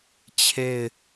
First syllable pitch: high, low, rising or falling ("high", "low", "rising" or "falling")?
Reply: falling